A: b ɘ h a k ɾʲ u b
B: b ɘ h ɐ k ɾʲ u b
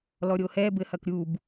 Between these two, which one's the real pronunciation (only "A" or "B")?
B